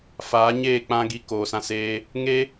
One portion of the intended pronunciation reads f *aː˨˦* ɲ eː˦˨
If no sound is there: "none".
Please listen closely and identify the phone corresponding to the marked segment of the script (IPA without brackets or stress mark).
aː˨˦